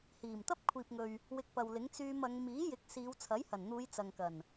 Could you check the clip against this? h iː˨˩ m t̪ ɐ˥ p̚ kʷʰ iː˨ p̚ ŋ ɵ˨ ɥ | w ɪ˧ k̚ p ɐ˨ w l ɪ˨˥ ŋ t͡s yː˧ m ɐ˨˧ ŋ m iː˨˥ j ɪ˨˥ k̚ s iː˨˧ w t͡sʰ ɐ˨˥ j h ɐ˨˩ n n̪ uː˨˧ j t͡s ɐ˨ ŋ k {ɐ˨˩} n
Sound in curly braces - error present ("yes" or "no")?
no